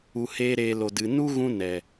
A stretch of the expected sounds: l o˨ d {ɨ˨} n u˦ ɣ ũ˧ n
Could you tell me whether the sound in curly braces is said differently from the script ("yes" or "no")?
no